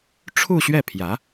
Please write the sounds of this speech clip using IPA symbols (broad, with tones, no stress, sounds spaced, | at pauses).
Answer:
ʈ͡ʂʰ u˥˧ ɕ ɥ ɛ˥˩ pʰ j ä˧˥